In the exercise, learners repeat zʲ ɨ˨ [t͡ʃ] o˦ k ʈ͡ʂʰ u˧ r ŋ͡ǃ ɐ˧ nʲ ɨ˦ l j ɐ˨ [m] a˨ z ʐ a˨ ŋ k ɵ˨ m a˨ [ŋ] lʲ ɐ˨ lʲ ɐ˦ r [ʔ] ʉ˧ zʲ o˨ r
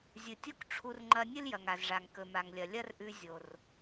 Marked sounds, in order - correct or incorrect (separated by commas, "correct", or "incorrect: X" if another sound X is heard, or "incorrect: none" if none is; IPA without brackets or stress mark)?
incorrect: tʲ, incorrect: ŋ, correct, correct